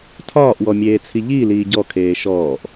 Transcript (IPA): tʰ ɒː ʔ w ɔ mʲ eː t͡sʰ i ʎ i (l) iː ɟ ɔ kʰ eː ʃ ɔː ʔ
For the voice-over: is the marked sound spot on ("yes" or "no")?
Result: yes